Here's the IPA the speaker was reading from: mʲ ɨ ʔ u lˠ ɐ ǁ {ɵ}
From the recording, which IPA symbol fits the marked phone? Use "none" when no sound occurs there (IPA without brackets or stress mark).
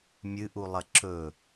ɵ